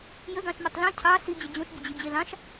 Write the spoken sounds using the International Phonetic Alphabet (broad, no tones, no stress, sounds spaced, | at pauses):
j ə ɡ ɑ̃ ʃ mʲ ɘ tˤ l ĩ cʰ ɑ s i d͡ʑ ə d͡ʑ õ ʃ bʲ ə d͡ʑ i d͡ʑ e l ɑ̃ ʃ